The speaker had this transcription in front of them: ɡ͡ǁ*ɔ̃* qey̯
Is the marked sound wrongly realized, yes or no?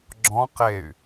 no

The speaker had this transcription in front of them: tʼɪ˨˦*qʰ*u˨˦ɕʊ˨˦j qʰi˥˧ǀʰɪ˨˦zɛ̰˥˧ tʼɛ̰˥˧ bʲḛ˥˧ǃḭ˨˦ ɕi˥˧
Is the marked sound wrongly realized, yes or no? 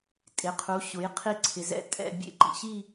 no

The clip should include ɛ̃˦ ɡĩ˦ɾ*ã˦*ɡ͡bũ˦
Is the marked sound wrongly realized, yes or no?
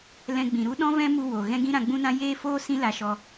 yes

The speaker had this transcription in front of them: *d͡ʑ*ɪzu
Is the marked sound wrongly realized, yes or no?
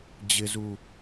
no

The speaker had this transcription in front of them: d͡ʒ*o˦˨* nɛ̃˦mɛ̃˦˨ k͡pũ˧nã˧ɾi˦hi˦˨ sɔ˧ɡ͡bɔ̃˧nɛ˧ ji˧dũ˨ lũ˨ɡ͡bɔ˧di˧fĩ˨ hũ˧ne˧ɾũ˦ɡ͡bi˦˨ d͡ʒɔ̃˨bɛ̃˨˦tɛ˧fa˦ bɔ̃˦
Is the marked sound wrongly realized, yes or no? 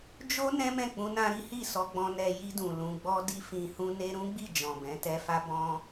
yes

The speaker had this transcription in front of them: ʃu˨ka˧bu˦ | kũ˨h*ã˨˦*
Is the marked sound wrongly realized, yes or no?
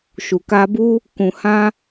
yes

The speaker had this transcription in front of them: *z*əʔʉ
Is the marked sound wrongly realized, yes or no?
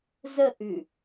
no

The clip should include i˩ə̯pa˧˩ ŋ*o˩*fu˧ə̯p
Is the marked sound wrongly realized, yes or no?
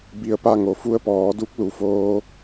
no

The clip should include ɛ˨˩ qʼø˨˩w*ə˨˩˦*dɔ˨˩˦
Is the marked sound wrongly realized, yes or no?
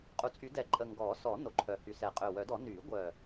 yes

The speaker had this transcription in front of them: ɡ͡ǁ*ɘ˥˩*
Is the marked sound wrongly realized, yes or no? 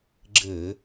yes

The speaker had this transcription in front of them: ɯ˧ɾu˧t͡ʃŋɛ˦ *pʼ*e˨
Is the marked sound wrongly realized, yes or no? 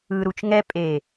no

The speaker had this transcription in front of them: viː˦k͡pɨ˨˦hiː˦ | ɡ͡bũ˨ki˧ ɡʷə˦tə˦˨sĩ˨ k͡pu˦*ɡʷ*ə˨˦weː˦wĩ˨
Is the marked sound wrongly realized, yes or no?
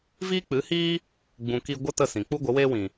no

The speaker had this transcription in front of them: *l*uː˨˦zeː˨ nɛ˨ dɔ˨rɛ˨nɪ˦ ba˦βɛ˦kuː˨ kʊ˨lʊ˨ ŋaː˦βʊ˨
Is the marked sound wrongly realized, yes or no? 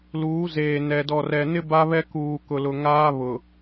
no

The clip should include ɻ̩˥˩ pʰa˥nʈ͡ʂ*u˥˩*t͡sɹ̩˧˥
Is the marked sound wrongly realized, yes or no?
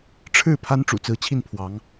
yes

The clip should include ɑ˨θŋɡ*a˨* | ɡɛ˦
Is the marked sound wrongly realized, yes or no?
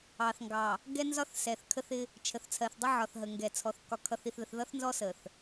yes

